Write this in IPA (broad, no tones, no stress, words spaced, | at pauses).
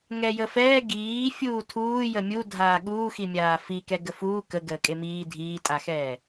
ŋɛjəfɛː ɡiː fʲuːtʰuː jəmʲudʱaː ɠuːximʲaː fikɛ ɡəfuː kə ɡəːkʼemiː dʱiːtʼaxɛː